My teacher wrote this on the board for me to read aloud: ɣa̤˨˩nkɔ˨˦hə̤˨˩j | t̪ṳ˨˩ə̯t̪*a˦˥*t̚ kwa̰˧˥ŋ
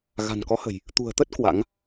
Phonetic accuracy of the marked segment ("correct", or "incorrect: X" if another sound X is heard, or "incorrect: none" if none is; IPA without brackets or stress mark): incorrect: ə˦˥